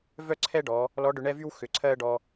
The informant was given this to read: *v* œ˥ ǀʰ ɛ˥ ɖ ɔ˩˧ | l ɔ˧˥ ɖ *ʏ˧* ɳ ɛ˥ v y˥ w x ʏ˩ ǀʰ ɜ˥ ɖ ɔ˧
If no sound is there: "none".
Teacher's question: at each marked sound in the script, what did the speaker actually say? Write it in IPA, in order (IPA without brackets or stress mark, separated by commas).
v, ʏ˧